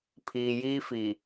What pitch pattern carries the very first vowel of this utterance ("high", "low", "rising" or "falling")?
low